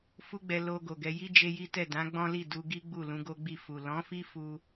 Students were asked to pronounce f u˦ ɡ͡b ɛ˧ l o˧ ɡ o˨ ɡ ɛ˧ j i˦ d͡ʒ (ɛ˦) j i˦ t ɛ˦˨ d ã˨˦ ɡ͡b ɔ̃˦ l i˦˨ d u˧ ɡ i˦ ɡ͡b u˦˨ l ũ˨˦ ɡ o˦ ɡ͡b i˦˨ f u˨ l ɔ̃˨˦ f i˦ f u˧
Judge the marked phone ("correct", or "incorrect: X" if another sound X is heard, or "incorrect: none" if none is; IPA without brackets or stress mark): incorrect: e˦